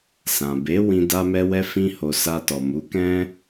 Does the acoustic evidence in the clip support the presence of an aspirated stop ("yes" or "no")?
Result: no